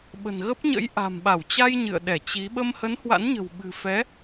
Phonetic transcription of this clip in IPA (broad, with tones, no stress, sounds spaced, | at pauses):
ɓ ə̤˨˩ n ɣ ə˦˥ p̚ ɲ ə̰˧˥ j ʔ a̤˨˩ m ɓ a˧˩ w t͡ɕ a˧ j ɲ ɨ̰˧˨ ə̯ ɗ ɛ˧˩ t͡ɕ i˨˦ ɓ ə˧ m h ə˨˦ n h w a̰˧˥ n ɲ ə̤˨˩ w ɓ ɨ̤˨˩ f ɛ˨˦